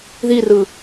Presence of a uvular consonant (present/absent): absent